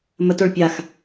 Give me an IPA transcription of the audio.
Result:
m ə t o ɭ pʲ a x

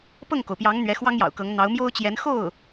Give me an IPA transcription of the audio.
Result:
p ɤ˥˩ ŋ k o˩ ʊ̯ p j ɑ˧˥ ŋ n̪ ɥ ɛ˧˥ x w ɑ˥ ŋ j ɑ̰˨˩ ʊ̯ k ɤ˧˥ ŋ n̪ ɑ˧˥ ʊ̯ m j o˥ ʊ̯ t͡ɕ j ɛ˧˥ n x o˥˩ ʊ̯

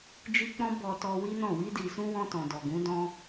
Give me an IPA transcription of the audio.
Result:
d͡ʒ i˦ k͡p ɔ̃˦ b ɔ˧ t ɔ˧ w i˦ n ɔ̃˦˨ w i˧ d i˨ s ũ˧ w ɔ̃˧ t ɔ̃˨ d ɔ˨ ɡ ũ˨˦ d ɔ̃˦

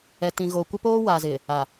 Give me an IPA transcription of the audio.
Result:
ɛ˨ t ĩ˨ ɣ oː˨ kʷ ɪ˦ p oː˦ w aː˨ z ɪ˨ | a˨

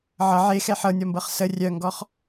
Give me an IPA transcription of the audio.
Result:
ʕ ʌ ʕ e x ɛ ħ ɤ nʲ ɔ m b ɤ χ s ə rʲ œ ŋ ɡ ɔ χ

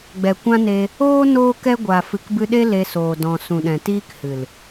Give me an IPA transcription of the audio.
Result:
ɡ͡b ɛ˨ kʷ ã˦ n e˧ | oː˦ n oː˦ k ɛ˦ ɡʷ a˨ f ɨ˨ k b ɨ˧ ɗ e˦ l e˧ s oː˨ d ɔ̃˨ s ũ˨ ɗ ɛ̃˨ t iː˦ k h ɨ˨ l

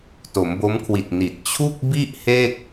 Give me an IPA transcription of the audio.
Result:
t o˩˦ m b o˦˥ m kʰ w i˨˩ t̚ n i˨˩ t̚ t͡ɕʰ u˥˩ k̚ b i˥˩ ʔ h e˥˩ k̚

